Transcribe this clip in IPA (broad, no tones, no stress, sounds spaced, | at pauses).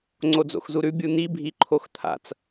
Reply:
ŋ͡ǀ o d͡z o̰ x z u ɾ ʉ bʲ u n̪ i bʱ i ǃʰ o x t̪ʰ a̰ t͡s